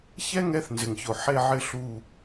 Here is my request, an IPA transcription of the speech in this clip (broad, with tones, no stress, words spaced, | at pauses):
çɛ˥˧ŋ ɛ˥˧θnzɪ˨ŋço˨ ħe˥˧ʕɪ˥˧ ɬu˥˧